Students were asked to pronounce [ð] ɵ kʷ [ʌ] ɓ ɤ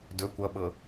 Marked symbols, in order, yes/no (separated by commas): no, yes